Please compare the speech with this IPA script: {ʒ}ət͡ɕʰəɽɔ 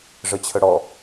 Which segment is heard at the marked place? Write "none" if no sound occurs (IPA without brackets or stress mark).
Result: ʐ